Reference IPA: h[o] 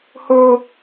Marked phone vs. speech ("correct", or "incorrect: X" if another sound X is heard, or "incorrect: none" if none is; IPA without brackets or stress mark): correct